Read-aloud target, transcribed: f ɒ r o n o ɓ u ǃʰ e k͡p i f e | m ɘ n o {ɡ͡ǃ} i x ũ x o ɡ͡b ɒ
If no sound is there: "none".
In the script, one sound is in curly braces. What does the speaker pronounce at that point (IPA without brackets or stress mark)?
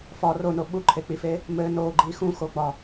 ɡ͡ǃ